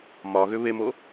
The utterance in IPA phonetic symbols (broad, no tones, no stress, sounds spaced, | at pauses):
m ɒ ɣ ʏ β e m o